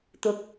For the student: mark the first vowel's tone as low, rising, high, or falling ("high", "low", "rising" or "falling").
rising